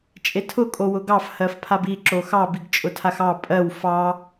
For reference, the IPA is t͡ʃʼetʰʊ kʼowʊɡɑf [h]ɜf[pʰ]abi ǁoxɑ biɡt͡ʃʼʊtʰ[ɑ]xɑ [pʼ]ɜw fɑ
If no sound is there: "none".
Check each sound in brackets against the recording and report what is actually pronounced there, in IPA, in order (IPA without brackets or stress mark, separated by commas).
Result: h, pʰ, a, pʼ